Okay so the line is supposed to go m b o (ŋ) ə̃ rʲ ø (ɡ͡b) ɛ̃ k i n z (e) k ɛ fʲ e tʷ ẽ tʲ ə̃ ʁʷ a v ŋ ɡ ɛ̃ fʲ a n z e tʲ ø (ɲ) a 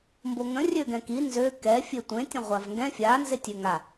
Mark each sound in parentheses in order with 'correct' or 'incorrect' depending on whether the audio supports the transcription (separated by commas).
correct, incorrect, incorrect, incorrect